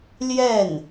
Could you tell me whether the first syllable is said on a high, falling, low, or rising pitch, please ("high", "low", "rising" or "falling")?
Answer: falling